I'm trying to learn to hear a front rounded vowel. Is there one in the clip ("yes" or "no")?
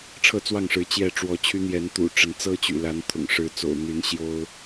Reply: yes